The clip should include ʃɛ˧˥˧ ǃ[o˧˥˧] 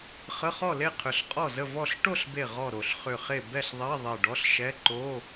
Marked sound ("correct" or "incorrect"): correct